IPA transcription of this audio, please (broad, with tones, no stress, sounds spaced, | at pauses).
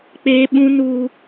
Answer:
k͡p eː˦ ɓ ũ˦ n uː˦